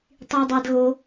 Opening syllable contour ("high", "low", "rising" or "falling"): high